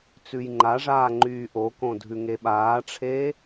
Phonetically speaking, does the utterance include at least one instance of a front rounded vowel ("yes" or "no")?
yes